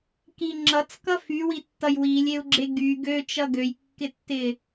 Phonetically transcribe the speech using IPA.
k i ŋ͡ǁ ʌ t͡s k ʌ f y w i tː ʌ j w i lʲ e u̯ ɡ͡ǁ e ɡ y ɡ ø t͡ʃ ʌ ɡ ø j kː ɪ tː ɪ

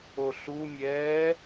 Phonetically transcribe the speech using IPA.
o ɬ u mʲ ɛː

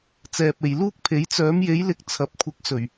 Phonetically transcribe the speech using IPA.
t͡s ɛː˨ p̚ e˨ j l uː˥ k̚ pʰ e˨˥ j t͡s œː˨˥ m j e˨˥ j l ɪ˨ k̚ t͡sʰ ɐ˨˥ p̚ kʷʰ ɪ˨˥ k̚ s ɵ˨˩ ɥ

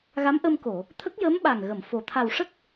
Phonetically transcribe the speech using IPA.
ɣ a˧˥ m ʔ ə˧ m k o˨˩˨ | t̪ʰ ə˦˥ k̚ j ə˧˥ m ɓ a˨˩ ŋ ɣ ə˨˩˨ m f o˨˩ t̪ʰ a˨˩ w ʂ ə˦˥ k̚

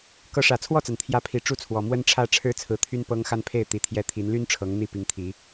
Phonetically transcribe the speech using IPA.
k ɤ˨˦ ʂ ä˨˩ t͡sʰ w ɔ˥˨ t͡s a˩ n t̪ʰ j ä˨˦ pʰ i˨˩ ʈ͡ʂ u˦ t͡sʰ w ɔ˨˩ m w ə˦ n ʈ͡ʂʰ ä˥˨ ʈ͡ʂʰ ɻ̩˦ t͡sʰ ɹ̩˨˦ t̪ʰ y˦ n p ɤ˦ ŋ x a˦ n pʰ e˥˨ ɪ̯ t̪ i˨˩ t̪ʰ j ɛ˨˦ t̪ʰ i˨˦ n l y˦ n ʈ͡ʂʰ ɤ˨˦ ŋ n̪ i˥˨ p i˨˦ ŋ t̪ʰ i˨˦

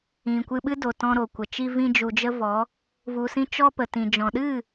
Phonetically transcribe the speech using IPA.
ĩ˨ kʷ ɨ˧ ɓ ɨ˦ d o˨ t ɔ̃˧ ɾ o˨ kʷ ə˨ t͡ʃ i˦ v ĩ˦ d͡ʒ u˧ d͡ʒ ə˦ v ɔ˨˦ | v u˧ s ĩ˦ t͡ʃ ɔ˦ p ə˨ t ĩ˨ d͡ʒ ɔ̃˨ ɗ ɨ˦˨

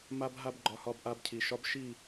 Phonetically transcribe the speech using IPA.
m a˦ b ɦ a˦ b ɡ͡ǃ ɒ˦ h ɒ˦ b ʔ a˦ b cʰ i˨ ʃ ɒ˦ b ʃ i˦˨

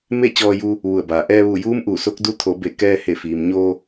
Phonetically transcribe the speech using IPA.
m e˥˨ t͡ɕ ɔː˧ j u˧ | ʋ u˧˩ ə̯ b aː˩ ʔ ɛː˧ ʋ u˧˩ j uː˧˥ m ʔ u˧˩ s o˧˥ k̚ d u˧˥ t̪ʰ o˩˧ b e˧˩ k ɛː˧ h e˧˩ f iː˩ m ɲ o˧

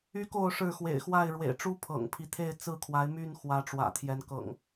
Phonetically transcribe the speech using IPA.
y˦ k o˥˨ ʊ̯ ʂ ɻ̩˥˨ x w ḛ˨˩ ɪ̯ x w a˥˨ ɪ̯ ɻ w ḛ˨˩ ɪ̯ ʈ͡ʂ u˦ pʰ ɤ̰˨˩ ŋ pʰ i˦ t̪ʰ e˥˨ ɪ̯ t͡s ɹ̩˥˨ kʰ w a˨˦ ɪ̯ m y˥˨ n x w ä˨˦ ʈ͡ʂ w ä̰˨˩ t̪ʰ j ɛ˨˦ n k ɤ̰˨˩ ŋ

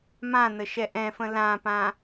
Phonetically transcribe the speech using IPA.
m ã n ə ʃ ɛ ʔ ɛ̃ f ə̃ l ã p ã

